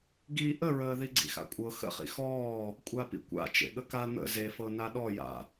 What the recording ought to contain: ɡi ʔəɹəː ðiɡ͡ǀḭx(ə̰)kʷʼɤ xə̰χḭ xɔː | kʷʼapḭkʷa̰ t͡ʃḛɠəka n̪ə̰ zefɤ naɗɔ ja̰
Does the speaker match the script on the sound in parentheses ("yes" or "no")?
no